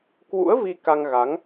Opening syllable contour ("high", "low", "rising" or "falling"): rising